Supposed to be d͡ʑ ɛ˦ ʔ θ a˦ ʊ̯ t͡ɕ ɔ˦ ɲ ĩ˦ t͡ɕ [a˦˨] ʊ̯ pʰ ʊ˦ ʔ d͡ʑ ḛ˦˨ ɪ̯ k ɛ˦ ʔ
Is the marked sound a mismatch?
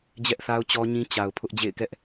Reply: yes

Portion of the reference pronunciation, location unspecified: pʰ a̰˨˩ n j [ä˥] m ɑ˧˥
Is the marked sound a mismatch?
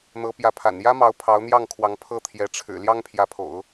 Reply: no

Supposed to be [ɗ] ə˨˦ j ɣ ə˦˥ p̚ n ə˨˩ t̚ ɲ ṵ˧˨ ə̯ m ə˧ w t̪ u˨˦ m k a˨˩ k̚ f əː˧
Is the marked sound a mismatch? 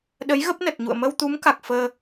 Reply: no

